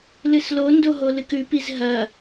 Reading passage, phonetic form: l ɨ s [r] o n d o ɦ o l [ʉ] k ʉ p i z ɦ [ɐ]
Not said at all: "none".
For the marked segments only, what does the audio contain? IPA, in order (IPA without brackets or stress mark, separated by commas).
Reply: l, ɨ, ɐ